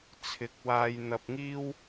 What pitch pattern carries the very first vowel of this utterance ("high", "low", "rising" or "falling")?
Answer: rising